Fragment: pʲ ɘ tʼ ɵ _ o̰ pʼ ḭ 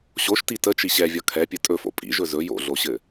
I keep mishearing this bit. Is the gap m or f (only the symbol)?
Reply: f